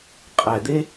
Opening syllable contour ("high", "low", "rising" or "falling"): low